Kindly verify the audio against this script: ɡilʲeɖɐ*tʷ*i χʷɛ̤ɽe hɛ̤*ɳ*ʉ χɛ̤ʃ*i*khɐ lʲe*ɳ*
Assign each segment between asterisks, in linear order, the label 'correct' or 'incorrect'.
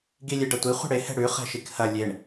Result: correct, incorrect, correct, correct

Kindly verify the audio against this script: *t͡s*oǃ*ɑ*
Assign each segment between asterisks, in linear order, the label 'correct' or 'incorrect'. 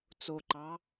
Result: correct, correct

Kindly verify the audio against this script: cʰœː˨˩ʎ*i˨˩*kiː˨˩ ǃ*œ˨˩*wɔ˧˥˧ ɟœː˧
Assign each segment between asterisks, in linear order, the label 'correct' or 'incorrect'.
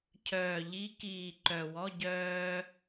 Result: incorrect, correct

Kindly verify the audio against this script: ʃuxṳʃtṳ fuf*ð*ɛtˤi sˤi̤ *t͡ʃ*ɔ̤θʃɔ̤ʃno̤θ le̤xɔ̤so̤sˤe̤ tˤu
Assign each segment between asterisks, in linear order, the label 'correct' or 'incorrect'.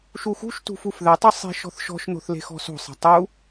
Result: correct, incorrect

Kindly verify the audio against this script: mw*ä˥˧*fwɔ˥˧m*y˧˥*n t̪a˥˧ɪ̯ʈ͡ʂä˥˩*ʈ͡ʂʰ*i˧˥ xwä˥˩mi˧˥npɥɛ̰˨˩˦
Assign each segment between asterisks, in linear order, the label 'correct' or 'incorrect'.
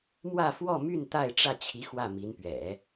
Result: correct, incorrect, incorrect

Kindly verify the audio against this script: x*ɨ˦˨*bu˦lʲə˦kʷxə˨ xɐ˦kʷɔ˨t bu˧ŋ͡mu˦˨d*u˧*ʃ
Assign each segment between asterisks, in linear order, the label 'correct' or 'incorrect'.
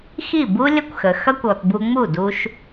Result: incorrect, correct

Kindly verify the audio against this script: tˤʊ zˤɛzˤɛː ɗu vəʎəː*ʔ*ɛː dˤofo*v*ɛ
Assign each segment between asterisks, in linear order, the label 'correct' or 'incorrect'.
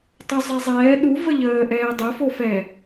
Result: correct, incorrect

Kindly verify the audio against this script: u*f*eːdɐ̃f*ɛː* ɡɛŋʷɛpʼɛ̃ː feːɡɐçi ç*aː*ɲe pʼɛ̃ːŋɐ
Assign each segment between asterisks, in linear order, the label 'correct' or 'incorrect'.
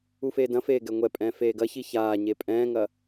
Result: correct, incorrect, correct

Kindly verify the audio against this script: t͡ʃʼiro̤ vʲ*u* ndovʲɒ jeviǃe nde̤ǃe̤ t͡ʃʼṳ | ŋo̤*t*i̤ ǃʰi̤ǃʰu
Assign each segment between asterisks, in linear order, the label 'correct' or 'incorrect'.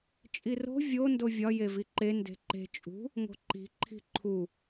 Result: incorrect, incorrect

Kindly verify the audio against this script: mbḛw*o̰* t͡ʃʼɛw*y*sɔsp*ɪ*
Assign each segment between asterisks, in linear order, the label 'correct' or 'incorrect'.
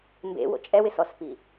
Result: correct, incorrect, incorrect

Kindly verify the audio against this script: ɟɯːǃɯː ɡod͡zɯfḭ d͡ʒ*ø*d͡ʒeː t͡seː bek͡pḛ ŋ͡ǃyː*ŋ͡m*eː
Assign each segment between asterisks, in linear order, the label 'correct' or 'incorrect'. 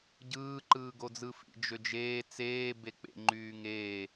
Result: correct, incorrect

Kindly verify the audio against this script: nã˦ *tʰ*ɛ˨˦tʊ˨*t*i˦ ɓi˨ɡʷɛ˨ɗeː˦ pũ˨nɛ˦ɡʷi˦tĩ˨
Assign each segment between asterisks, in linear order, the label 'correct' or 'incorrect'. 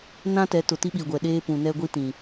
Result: incorrect, correct

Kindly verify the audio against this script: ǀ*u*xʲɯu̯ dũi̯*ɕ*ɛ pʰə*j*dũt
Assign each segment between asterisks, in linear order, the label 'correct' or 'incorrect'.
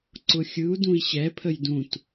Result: incorrect, correct, correct

